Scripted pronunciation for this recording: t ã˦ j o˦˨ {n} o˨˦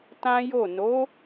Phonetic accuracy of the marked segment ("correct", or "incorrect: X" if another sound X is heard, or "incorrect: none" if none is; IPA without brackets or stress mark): correct